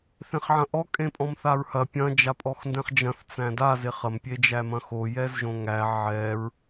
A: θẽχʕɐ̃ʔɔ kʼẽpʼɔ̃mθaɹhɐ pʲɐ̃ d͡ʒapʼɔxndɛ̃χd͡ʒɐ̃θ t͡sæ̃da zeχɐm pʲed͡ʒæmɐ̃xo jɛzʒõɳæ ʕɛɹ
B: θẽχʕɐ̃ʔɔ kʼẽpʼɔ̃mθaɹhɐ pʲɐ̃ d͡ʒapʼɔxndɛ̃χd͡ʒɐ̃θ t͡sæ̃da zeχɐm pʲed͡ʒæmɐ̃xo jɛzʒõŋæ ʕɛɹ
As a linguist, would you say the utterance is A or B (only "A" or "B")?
B